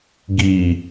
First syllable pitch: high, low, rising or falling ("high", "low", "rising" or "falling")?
low